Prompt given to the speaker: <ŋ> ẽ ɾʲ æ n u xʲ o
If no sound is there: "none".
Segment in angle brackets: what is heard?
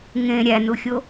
ŋ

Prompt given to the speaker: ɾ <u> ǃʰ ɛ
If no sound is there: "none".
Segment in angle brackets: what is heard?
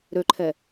ø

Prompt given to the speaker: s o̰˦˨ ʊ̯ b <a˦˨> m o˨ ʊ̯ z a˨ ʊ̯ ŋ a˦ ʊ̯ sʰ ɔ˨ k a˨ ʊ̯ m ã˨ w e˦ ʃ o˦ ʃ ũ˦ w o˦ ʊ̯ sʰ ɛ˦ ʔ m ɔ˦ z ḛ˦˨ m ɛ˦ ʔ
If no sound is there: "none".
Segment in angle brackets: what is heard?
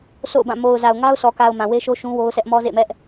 ã˦˨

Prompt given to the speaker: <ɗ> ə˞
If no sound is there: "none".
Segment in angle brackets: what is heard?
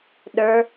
ɗ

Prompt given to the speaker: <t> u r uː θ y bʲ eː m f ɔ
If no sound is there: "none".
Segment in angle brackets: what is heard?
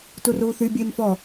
t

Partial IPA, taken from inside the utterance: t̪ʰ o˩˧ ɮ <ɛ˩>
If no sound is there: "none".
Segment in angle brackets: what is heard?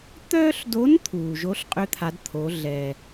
ɛ˩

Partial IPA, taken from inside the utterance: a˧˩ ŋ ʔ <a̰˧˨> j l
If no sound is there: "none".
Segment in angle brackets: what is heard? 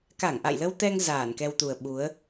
a̰˧˨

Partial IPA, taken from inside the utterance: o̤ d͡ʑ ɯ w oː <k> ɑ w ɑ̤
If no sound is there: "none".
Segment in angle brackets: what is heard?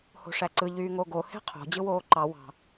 ǃ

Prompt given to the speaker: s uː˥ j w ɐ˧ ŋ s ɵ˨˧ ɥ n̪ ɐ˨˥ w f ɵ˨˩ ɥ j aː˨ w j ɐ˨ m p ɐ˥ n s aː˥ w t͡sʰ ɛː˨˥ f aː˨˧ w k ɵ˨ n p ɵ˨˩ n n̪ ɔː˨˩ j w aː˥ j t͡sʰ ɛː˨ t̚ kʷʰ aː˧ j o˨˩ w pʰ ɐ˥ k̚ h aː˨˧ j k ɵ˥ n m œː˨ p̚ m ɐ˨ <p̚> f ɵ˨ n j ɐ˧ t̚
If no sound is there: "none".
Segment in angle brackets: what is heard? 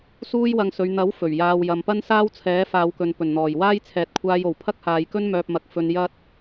k̚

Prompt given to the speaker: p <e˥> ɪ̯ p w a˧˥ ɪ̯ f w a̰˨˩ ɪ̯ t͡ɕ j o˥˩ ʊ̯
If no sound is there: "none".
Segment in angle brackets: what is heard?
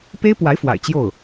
e˥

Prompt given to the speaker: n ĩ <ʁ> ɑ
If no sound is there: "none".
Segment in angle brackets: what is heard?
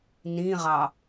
ʁ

